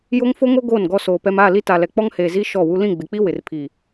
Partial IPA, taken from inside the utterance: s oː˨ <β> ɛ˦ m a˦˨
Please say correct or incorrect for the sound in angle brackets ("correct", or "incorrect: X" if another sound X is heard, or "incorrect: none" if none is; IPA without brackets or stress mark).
incorrect: p